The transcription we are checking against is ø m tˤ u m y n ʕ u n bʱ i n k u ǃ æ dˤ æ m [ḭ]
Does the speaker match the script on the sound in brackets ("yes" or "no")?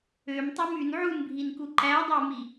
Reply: no